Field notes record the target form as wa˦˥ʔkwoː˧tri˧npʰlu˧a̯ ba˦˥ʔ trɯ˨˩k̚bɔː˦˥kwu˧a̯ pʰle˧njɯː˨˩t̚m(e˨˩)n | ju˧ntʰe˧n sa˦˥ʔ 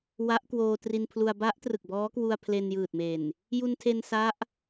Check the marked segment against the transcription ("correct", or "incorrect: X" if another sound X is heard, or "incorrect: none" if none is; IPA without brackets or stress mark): correct